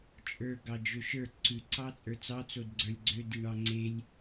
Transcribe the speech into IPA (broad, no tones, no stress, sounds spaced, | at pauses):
t͡ʃʼ ə˞ ɡ ɑ d͡ʒ ø ʃ ə˞ ǀ ʉ ǀ ɑ t͡sʼ ə˞ t͡s ɑ t͡s o d ɡ͡ǀ ə˞ lʲ ɡ͡ǀ ø d i ɳ ɑ ŋ͡ǀ e lʲ